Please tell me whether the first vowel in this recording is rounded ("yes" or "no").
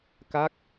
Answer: no